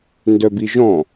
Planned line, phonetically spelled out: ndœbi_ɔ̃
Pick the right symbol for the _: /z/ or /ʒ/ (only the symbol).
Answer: ʒ